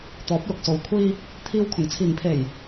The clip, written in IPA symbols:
t̪ ɔː˨˥ p̚ l ʊ˨ k̚ s o˨ w kʷʰ iː˧ | t̪ʰ iː˧ w kʰ ʊ˨˩ ŋ t͡sʰ iː˨˩ ŋ pʰ e˨˩ j

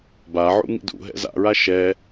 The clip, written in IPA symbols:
b a ʕ ṵ ŋ ḭ d ṵ ɦ ɛ̰ z a̰ ɹ a ʃ ɛ

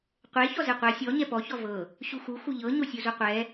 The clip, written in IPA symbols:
qʷ e ç ɔ z e qʷ ɛ sʲ ɔ ɲ ɛ p ɔ ç ɔ v ɤ | ɕ u x u x u ʎ ɤ ɲ o sʲ u z u qʷ ɛ

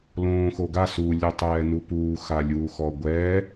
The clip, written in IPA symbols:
l õː x o ɡ a s u lʲ o tˤ ɛː n u p uː x a lʲ uː x ɔ ɡʷ ɛ

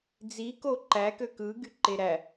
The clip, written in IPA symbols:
d͡z i k o ǃ æ k ø k ɯ ɡ y ǃ e ɾ æ

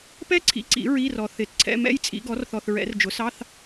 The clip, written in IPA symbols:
p ɛ˥ ǀʰ ḭ˨ ǀ ḭ˨˩˦ ɹ i˧˥˧ r ɔ˨ θ ɪ˨˩˦ t ǀʰ ɛ̰˧˥˧ m ɛ̰˥ j t͡sʼ ḭ˩˥ ɡ ɔ˩˥ r θ ɔ˨ θ ɹ ɛ̰˨˩˦ r d͡ʒ ʊ˩˥ s ɑ˧˥˧ θ

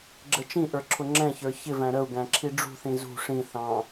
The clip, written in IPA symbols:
ɡ͡ǁ ə t͡ʃ ĩ ʔ ə˞ ǁʰ ʊ ŋ͡ǁ ɛ̃ ç ə˞ ç ɪ v æ̃ ɾ ə u̯ ɡ æ̃ ǁʰ i ɖ͡ʐ ṳ θ ĩ z ṳ ʂ ĩ θ ɑ̃

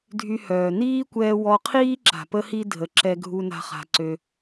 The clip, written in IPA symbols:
dʱ y˧ h œː˩ n iː˥ kʷ ɛː˧ w ɔ˧ qʰ iː˥ ǁ a̤˩ p ə˥ h i˥ dʱ ə˩ ǁ ɛ˧ ɡʱ u˧ n a̤˧ χ a̤˩ ǀ ø˩

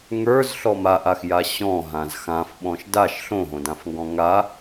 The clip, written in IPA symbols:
ŋ ə˞ z ɬ ɔ m a ʔ a x j a ɕ ɔ̃ ɦ ã z x ã f ɓ ɔ̃ ʃ d a ʃ ɬ õ ɦ õ d ã f ŋ ɡ ɔ̃ ŋ a

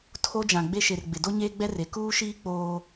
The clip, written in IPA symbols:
tʰ o˦ d͡ʒ ã˨ ɡ͡b e˦ ʃ e˨ r ɡ͡b ɪ˨ d o˦ ɲ eː˦ ɡ͡b ɛ˦ r e˨ k uː˦ ʃ iː˦ k͡p oː˦

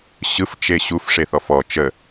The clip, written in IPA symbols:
ɕ ɯ f t͡ʃ e ɕ u f ʂ e θ ɔ f ɔ t͡ʃ ə

